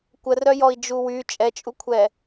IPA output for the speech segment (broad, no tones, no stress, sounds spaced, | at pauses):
kʷ ə r œ j ɔ i̯ d͡ʒ u w y t͡ʃʼ ɛ t͡ʃʼ u kʷʰ ɛ